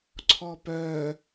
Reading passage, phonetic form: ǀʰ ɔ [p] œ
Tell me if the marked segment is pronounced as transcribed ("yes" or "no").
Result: yes